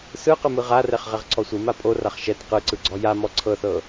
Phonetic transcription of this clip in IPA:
s ɯ q ɯ m ɯ ʁ a r ɛ χ ʁ ɛ ʁ ǀʰ ɔ sʷ ɯ m a pʼ o r a χ ʃ ɛ t q ɯ ǀ ɯ ɡ͡ǀ ɔ j a m ɔ ǀʰ ɤ θ ɤ

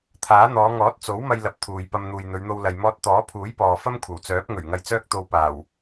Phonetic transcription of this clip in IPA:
t̪ʰ aː˨˥ n̪ ɔː˨˧ ŋ ɔː˨˥ t̚ t͡s o˨˥ w m ɐ˧ j l ɐ˧ p̚ t̪ʰ uː˨ j p ɐ˧ m n̪ uː˨ j n̪ ɵ˨˧ ɥ n̪ o˧ w l ɐ˨ j m ɔː˧ t̚ t̪ ɔː˨˥ pʰ uː˨˥ j p ɔː˨ f ɐ˥ m kʷʰ ɐ˨˩ w t͡s œː˨˥ p̚ ŋ ɵ˨˩ ɥ ŋ ɐ˧ j t͡s œː˥ k̚ t̪ o˧ w p aː˨˩ w

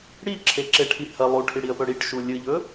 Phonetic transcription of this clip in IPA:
ɽ i ǁʰ e ǁ e ʈʰ i h ɐ lˠ u ʈʰ i ɽ i ə̯ p ɵ ɽ i ʈ ʃ u lʲ ɨ ʎ ɵ

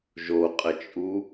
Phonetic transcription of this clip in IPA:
ʒ o qʼ ə t͡ʃʼ u

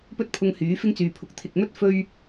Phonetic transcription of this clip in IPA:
p ɵ˥ t̚ pʰ ʊ˧ ŋ h yː˨˥ f ɪ˥ ŋ t͡s yː˨ pʰ ʊ˨˥ k̚ t̪ʰ ɪ˨ k̚ m ɵ˥ t̚ f ɵ˥ ɥ

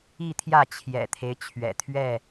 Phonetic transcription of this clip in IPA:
i˥˨ t̪ʰ j ä˥˨ t͡ɕʰ j ɛ̰˨˩ t̪ʰ e˦ ɪ̯ t͡ɕʰ ɥ ɛ̰˨˩ t̪ʰ ɥ ɛ˥˨

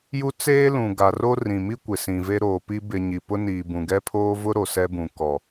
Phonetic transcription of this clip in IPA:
j u˦ t͡s eː˦ l ũ˨ ɡ a˨ r o˦ r ĩ˨ m i˦ kʷ ɪ˨ s ĩ˨ v e˦ ɾ oː˨ p i˦ b ɪ˨ ɲ i˨ p ʊ˦ n iː˨ b ũ˨ ɡ ɛ˦ pʰ oː˦ v ʊ˦ ɾ o˨ s ɛ˦ b ũ˨ k ɔ˨

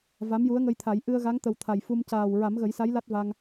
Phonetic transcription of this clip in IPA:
v a˧˥ m j u˧˥ ə̯ ŋ ə˧ j t̪ʰ a˨˩˦ j ʔ ɨ˧ ə̯ ɣ a˧˥ ŋ t̪ ə˨˩ w t̪ʰ a˨˩ j f u˧ m c aː˨˩ w ɹ a˨˩˦ m ɣ ə˨˩˦ j s a˧˥ j l a˦˥ t̚ v a˧ ŋ

